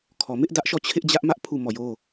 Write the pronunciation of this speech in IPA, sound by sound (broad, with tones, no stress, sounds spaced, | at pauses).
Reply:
kʰ ɔ˨ m ɪ˦ ʔ d ä˦ ʔ ʃ ɔ˦˨ t͡ɕʰ ɪ˦ ʔ d͡ʑ ä˦ ʔ m ä˦ ʔ pʰ u˦˨ m ɔ˦˨ j o˦